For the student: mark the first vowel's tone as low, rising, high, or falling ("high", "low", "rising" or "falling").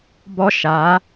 high